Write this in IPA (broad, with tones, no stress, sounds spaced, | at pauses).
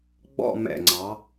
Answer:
ɡ͡b ɔ̰˥˧ m ɛ̰˧˩ ŋ͡ǀ ɑ˩˧